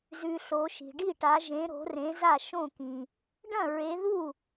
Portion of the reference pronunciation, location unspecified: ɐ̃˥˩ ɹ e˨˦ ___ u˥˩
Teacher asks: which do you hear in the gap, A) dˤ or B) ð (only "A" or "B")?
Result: B